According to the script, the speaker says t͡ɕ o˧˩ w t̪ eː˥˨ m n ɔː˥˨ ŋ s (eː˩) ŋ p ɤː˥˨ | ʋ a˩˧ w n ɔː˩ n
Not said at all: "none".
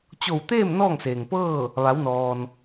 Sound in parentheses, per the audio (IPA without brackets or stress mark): eː˩